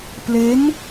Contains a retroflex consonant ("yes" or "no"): no